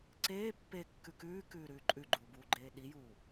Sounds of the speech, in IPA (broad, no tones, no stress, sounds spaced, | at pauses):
ǀ eː pː e kː ʉ k ʉː k ʉː ɾ ʉː ǃʼ ʉ ɡ͡ǃ uː b uː ɡ͡ǃ eː ɗ i j uː